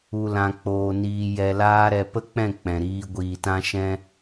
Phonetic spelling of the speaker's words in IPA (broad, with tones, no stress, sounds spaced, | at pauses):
u˧ l ã˧ k͡p oː˧ n iː˧ j ɛ˧ l aː˦ ɾ ɛ˧ p ə˦ k͡p ɛ̃˦˨ k͡p ɛ̃˨ ɾ iː˧ ɡʷ iː˨ t ã˧ ʃ ɛ̃˧